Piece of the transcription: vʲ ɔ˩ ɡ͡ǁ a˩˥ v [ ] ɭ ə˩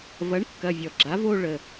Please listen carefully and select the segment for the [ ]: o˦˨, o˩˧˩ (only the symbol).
o˦˨